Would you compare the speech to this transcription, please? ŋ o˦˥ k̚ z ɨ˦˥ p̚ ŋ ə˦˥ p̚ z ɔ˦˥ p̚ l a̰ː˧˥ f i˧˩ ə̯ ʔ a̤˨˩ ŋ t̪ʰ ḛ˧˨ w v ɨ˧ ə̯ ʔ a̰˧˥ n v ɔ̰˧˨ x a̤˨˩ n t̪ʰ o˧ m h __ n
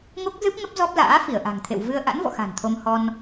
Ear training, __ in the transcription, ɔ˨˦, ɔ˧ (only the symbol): ɔ˧